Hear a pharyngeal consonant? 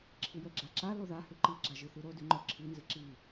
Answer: no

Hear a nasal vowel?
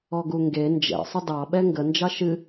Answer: no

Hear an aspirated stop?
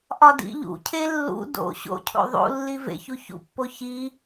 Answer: yes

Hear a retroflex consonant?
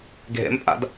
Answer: no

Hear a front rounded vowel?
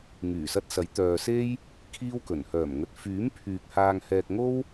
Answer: yes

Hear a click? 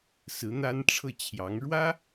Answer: no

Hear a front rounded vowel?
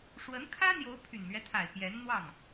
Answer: yes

